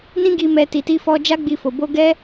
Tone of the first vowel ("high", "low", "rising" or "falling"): high